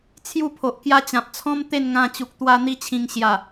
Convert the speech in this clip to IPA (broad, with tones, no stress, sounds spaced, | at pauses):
t͡sʰ j u˥˧ pʰ o˨ ʔ k j a˦ t͡ɕ ã˨ p̚ t͡sʰ ɔ̃˦ m t̪ e˥˧ n ŋ ã˧ t͡ɕ u˨ k̚ t̪ w a˧ n̪ i˧ t͡ɕʰ ĩ˨˩ ŋ ɕ j a˨˩